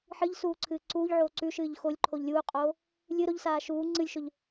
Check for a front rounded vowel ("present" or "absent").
absent